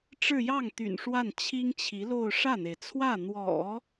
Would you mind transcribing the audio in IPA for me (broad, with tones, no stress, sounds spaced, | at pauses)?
ʈ͡ʂ ɻ̩˥˧ j ɑ˥˩ ŋ t̪ y̰˨˩ n ʂ w a˥˩ n t͡ɕʰ i˥ ŋ t͡ɕʰ i˧˥ l o˥˧ ʊ̯ ʂ ä˥˩ n̪ e˩ ɪ̯ t͡sʰ w ä˥˩ n̪ w ɔ̰˨˩˦